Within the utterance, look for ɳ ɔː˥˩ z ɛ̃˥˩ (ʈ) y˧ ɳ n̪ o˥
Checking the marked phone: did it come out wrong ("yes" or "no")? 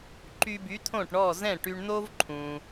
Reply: no